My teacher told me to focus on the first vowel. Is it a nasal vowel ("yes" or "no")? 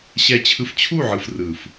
no